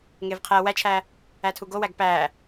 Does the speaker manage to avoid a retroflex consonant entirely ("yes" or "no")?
yes